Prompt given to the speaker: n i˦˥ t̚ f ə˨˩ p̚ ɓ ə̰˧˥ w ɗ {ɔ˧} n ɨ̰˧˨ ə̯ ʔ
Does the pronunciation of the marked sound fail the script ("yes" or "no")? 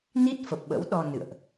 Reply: no